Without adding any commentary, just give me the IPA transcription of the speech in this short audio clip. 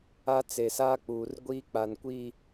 a˦ t͡s e˨ s aː˦ k͡p uː˨ r ɡʷ iː˦ k͡p a˨ n kʷ iː˦˨

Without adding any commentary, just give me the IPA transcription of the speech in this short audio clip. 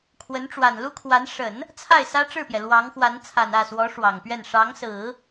kʰ w ə˧˥ n ʈ͡ʂ w a˨˩ n l u˥ kʰ w a˧˥ n ʂ ə˨˩˦ n | t͡sʰ a˥˩ ɪ̯ s ä˥ ʈ͡ʂ ɻ̩˥˩ p j ɛ˩ l w ɑ˧˥ ŋ x w a˧˥ n t͡sʰ a˨˩ n ä˥˩ s w ɔ˧˥ ʂ w ɑ˨˩ ŋ p ɥ ɛ˥˩ n ʂ ɑ˧˥ ŋ s ɹ̩˨˩˦

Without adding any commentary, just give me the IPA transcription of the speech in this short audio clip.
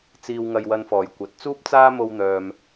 t͡s iː˧ w ŋ ɐ˧ j w ɐ˧ n f ɔː˨˩ j kʷ ɐ˨ t̚ t͡s uː˥ p̚ t͡s aː˥ m o˧ w n̪ œː˨ m

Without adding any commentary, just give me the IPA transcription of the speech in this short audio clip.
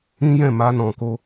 ĩ˦ j ɛ̃˦˨ m a˧ n ɔ̃˨ k o˧

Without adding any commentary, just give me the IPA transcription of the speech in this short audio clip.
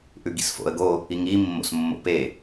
ʔ ʉ ɡ ḭ s f o̰ ə̯ ɡ o | i ŋ i mː o̰ s mː o̰ p e

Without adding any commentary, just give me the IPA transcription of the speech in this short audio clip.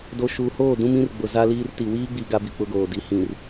d o˨ ʃ uː˨ h oː˦˨ d ũ˦ m ĩ˦ r ɡ͡b ʊ˨ z a˦ l iː˦ r t i˨ w iː˦ ɡ͡b i˨ ɡ a˦ b i˨ k͡p ʊ˦ ɡ oː˨ d i˨ h ĩ˨ r

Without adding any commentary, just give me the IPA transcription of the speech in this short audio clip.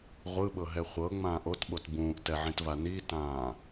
ʁʷ ɯ ɓ ɤ ɦ ɛ χʷ ɤ ŋ͡m ãː ʔ o t ɓ o t b ũː ʔ t ɛ ʕ ĩ t v a n i t ãː

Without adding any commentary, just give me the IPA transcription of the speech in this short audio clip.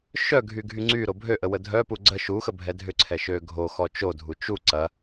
ʃ œ ɡʱ y ɡʱ y ŋ͡ǀ y ɾ o bʱ ø ʔ ə w ə dʱ œ p u ɡ͡ǀ ə ʃ u x ə bʱ ɛ dʱ ʏ ǀʰ ɛ ʃ ø ɡʱ o x ɔ t͡ʃ o dʱ u t͡ʃ u ǀ ɐ

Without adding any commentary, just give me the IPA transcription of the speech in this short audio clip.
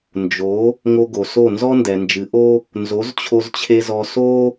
n d͡ʒ o˨˦ | ŋ o˧ ɡ o˨ s o˦˨ n z ɔ˦ n d ɛ˨ n d͡ʒ ɨ˨˦ ʔ o˦ | n z o˨˦ z t͡ɕʰ o˧ z t͡ɕʰ e˧ z ɔ˧ s o˦

